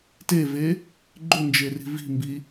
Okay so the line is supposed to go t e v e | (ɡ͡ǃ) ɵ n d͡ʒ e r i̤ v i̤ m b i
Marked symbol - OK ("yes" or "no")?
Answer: yes